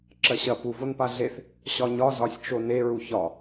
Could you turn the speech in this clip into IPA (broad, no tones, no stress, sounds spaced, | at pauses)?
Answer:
ǁ ɐ ɕ ɐ p u v o n p a ɮ e θ | ɕ ɒ ɲ ɒ z ɒ sʲ t͡ʃ o n e ɹ u ç ɒ